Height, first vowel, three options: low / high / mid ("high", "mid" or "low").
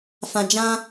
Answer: low